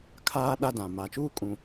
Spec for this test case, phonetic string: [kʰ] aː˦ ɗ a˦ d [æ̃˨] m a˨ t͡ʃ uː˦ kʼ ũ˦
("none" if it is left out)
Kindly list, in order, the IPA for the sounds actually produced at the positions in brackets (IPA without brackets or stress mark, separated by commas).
kʰ, ã˨